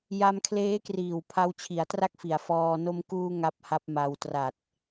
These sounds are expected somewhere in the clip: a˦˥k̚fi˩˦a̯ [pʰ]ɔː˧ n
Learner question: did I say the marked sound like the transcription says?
no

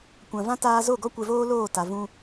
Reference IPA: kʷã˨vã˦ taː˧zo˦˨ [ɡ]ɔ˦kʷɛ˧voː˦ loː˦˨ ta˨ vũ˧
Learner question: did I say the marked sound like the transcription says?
yes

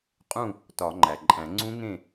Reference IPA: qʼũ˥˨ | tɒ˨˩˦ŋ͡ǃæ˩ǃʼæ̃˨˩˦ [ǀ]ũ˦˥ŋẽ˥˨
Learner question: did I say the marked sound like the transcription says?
no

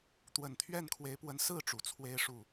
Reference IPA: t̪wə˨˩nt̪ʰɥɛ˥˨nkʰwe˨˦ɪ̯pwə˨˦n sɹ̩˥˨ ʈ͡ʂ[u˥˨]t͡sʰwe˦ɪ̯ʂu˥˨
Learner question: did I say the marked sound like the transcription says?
no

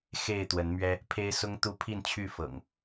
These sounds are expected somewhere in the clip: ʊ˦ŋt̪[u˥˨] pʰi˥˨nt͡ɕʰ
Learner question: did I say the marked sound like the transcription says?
no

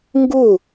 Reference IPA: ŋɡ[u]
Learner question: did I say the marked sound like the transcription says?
yes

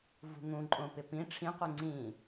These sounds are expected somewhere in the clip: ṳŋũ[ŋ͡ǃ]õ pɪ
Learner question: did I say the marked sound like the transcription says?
no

